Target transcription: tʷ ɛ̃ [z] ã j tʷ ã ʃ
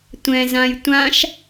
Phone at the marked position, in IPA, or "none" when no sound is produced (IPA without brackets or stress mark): z